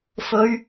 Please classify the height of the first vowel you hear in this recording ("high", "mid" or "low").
mid